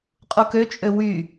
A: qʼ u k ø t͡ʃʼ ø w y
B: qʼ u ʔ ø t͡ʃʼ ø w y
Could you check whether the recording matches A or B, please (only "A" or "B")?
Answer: A